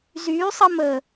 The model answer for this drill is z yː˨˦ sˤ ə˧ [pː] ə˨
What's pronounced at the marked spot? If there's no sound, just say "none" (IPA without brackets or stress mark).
m